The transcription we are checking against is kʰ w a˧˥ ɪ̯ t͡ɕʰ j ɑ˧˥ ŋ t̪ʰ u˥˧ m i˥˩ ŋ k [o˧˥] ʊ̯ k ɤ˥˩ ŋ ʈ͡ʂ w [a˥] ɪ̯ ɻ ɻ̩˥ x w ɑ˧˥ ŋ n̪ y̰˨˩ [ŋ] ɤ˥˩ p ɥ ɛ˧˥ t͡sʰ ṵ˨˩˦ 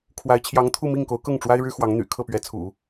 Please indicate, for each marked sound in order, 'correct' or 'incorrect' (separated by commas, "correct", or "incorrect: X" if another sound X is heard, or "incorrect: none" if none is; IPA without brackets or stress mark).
correct, correct, incorrect: kʰ